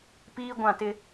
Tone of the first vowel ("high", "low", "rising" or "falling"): high